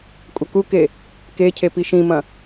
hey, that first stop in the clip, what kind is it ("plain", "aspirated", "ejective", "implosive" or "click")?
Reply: ejective